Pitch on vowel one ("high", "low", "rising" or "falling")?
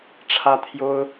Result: high